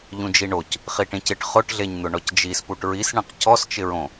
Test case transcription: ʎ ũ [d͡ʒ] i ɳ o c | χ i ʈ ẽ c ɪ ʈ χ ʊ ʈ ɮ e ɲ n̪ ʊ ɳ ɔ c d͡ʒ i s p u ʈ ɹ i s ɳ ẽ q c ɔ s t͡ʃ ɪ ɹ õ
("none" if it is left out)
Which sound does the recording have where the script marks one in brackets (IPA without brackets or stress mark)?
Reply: d͡ʒ